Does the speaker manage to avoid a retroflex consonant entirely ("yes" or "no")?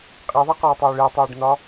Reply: no